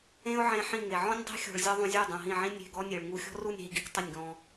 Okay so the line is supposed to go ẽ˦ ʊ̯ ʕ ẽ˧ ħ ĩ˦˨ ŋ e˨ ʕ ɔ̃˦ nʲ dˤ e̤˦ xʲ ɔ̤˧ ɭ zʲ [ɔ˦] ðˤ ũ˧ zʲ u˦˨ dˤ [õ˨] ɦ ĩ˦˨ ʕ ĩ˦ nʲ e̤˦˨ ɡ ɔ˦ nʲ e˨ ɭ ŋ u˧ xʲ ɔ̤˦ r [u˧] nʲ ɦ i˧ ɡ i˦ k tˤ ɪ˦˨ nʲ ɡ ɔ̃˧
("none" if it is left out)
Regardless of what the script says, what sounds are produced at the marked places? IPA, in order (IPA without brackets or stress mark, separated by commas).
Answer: ɔ˦, ũ˨, u˦˨